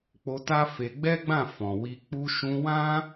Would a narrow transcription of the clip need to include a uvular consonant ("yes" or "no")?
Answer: no